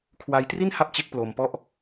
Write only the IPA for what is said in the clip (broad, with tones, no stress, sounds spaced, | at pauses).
kʰ w a˧ j t r i˥˩ n h a˦˥ p̚ t͡ɕ e˦˥ k̚ p l o˧ m p ɔ˥˩ ʔ